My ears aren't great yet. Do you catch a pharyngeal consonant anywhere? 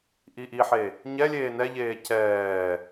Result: yes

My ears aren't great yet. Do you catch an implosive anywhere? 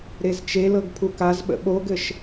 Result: yes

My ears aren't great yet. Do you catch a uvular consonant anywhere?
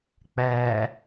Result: no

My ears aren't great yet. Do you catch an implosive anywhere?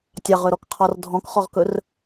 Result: no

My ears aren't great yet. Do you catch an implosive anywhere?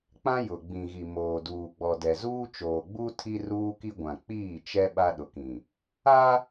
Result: yes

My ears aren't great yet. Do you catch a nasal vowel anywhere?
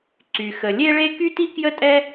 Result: no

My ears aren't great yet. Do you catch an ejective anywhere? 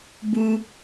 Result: no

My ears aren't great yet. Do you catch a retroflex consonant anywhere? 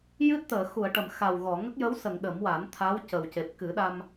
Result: yes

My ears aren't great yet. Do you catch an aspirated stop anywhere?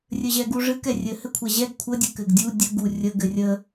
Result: yes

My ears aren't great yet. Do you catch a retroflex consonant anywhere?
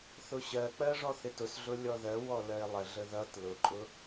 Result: yes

